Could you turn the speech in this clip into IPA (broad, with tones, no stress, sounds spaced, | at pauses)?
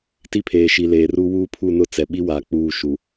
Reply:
t i˦ pʰ eː˨ ʃ i˨ l eː˨ r u˦ w uː˦ pʰ u˦˨ n ʊ˦˨ t͡s ɛ˨ ɓ i˦ w aː˨ k͡p uː˦˨ ʃ u˨